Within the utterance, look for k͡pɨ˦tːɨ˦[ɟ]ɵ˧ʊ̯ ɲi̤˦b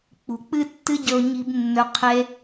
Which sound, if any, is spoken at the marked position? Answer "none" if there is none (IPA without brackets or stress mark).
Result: ɟ